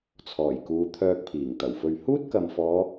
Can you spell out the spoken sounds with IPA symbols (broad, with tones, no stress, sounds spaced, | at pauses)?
t͡sʰ ɔː˨˩ j k uː˨˧ t̪ʰ œː˧ k̚ pʰ iː˨˩ ŋ t̪ ɐ˨˩ w f ɵ˧ ɥ h uː˥ t̚ k ɐ˨ m f ɔː˨˧